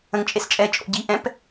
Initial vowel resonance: nasal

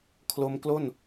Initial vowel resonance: oral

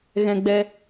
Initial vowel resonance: nasal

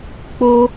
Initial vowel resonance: oral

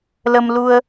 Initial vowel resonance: oral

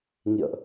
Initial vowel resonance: oral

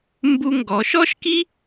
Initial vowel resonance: oral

